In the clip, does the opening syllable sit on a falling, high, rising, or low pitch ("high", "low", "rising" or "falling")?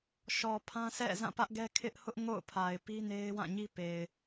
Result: low